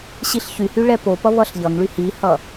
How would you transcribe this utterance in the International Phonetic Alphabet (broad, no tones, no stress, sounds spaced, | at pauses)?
ɕ i ɬ ç y h y ɭ ɛ p o p ʌ β ʌ ɬ ʎ ʌ ŋ ɭ y h i h ʌ